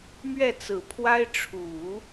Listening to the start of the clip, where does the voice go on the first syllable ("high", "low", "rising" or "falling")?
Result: falling